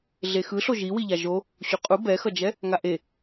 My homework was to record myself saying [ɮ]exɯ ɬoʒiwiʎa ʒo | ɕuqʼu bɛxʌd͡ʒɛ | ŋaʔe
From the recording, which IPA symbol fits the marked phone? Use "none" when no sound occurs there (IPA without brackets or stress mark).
ɮ